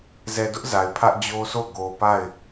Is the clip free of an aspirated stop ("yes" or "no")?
no